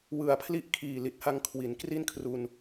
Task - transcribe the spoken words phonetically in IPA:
w ɯ˨˩ a̯ pʰ l i˥˩ ʔ kʰ iː˨˩ l i˨˩ t̚ h a˧ ŋ kʰ w i˩˦ n k r i˥˩ n kʰ r u˧ n

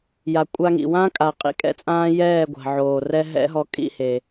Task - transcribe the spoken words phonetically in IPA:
j a˨ kʷʼ a˧ ŋ ḭ˨ w ã˦ kʼ a˨ qʼ ḭ˦ kʼ ɛ̰˦ t͡sʼ ãː˦ j ɛː˦˨ ɡʷ a̤˨ ʕ oː˨ r ɛ˦ ɦ ɛ̰˦ ɦ ɔ˧ kʼ ḭ˦˨ h e˨

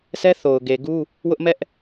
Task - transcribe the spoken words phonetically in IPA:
s ɛ˦ θ o˨ ʊ̯ ɡ e˨ ɡ u˦ | w ʊ˦ ʔ m ɛ˦ ʔ

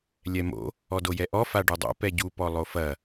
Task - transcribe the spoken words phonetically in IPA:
lʲ ɛ m o̰ | ɔ d o j ɛ ʔ ɔ f a ɖ u dˤ o̰ p ɛ ɟ u p ɔ lˠ o f ɐ

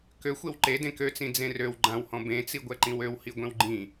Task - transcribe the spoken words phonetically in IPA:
k ø xʷ e w ǃ e d ẽ k ø t͡s ĩ d͡z ẽ r ø w ɡ͡ǃ ã w h ɔ̃ b ẽ t͡s i ɡʷ ɛ ǃ ĩ w ø w h i ɡʷ ẽ w ɡ͡ǃ ĩ

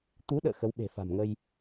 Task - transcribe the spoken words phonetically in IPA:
t̪ u˨˦ ɗ ə̰ː˧˨ x ə˨˦ w ɓ e̤˨˩ f a̤˨˩ m ŋ ə˧ j

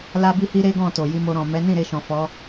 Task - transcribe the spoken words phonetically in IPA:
l a˦ b i˦ h i˦ ɾ e˦ ɡ ɔ̃˦˨ t o˨ j i˧ m o˧ ɾ ɔ̃˨ m ɛ˨˦ n ĩ˦˨ ɾ e˧ ʃ ɔ̃˨ f ɔ˨˦

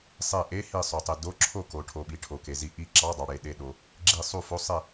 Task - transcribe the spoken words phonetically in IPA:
sˤ e˧˩ ʔ e˧˥˧ h i˧˩ sˤ o˩ tˤ e˩ d o˧˥˧ ǁʰ o˥˩ k o˩ ʈʰ o˩ ɓ i˩ ʈʰ o˩ k e˩ z i˧˩ ʔ i˥˩ ǁ ɑ˧˥˧ dˤ ɑ˩ ɽ e˧˩ ɗ e˧˩ ɗ o˩ | ɡ͡ǁ i˧˩ sˤ u˥˩ f o˧˥˧ sˤ e˥˩

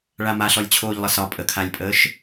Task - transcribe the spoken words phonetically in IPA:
ɭ a m a ɬ ɔ lʲ t͡ɕʰ oː ʎ lˠ ə s ɒ pʼ ə kʰ a lʲ pʼ əː ʃ

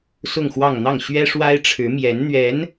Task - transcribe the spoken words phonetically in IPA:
s ʊ˥˧ ŋ x w ɑ˥˧ ŋ n̪ ɑ˥˩ ŋ ɕ ɥ ɛ˥ ʂ w a˥ ɪ̯ ʈ͡ʂʰ ɻ̩˧˥ m j ɛ˧˥ n n̪ ɥ ɛ˧˥ n

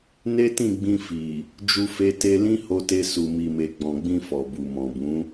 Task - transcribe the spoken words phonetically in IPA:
n e˦ t ĩ˦˨ ɡ͡b ĩ˧ f i˨ | d͡ʒ u˧ f e˧ t e˧ l ĩ˦ h o˧ t e˧ s u˨ m i˨ m e˨ ɡ͡b ɔ̃˨ ɡ͡b ĩ˧ f ɔ˨ b u˨ m ɔ̃˨ b ũ˨˦

